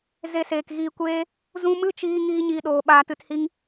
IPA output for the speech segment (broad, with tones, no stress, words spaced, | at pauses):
ze˧seː˨kɣiː˧kʷeː˦ | zũ˧ mɨ˦t͡ʃiː˧ ŋiː˦ɲiː˧ɗoː˨ ɓaː˧tɨ˧thi˦ŋ